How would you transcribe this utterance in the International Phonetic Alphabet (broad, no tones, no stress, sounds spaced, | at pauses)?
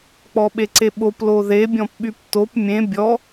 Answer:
k͡p ɔ ɓ e ǀ e ɓ o p l o ð e bʲ ɔ̃ p ɓ y p t o p mʲ ẽ bʲ ɔ